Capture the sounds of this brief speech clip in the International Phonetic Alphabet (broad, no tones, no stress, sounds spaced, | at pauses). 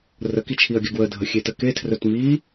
r ə k i t͡ʃʰ i ɐ̯ ɡʲ ə ɡ w ə dʱ ə xʲ e t ə k e tʰ r ɵ t m i